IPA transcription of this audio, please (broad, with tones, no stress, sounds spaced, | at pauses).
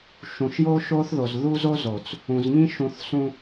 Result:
ʃ ũ˨ ʃ j o˦ ʃ o˦ θ ð o˨ z ð u˦ z o˦ z o˨ t͡s | ũ˨ z ŋ ĩ˦ ʃ ũ˨ θ s ũ˨